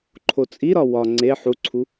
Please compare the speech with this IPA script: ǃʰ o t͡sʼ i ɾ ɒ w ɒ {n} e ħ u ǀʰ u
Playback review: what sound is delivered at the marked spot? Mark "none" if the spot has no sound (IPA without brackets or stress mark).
ŋ͡ǀ